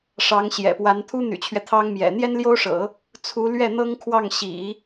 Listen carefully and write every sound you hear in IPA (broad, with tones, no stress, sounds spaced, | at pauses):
ʂ ɑ˧˥ ŋ ɕ j ɛ̰˨˩ p w a˧˥ n t̪ʰ u˥ n̪ y̰˨˩ t͡ɕʰ ɥ ɛ˦ t̪ʰ ɑ˥ ŋ m j ɛ̰˨˩ n̪ j ɛ˥ n l j o˥ ʊ̯ ʂ ɤ̰˨˩˦ | t͡sʰ u˧˥ l ɥ ɛ˥˩ n̪ ɤ˥ ŋ kʰ w ɑ˥˩ ŋ ɕ ḭ˨˩˦